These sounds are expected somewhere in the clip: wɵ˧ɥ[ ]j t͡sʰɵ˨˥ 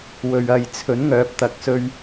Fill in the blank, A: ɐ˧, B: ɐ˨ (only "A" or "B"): A